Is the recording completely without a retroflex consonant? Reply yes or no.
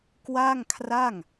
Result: yes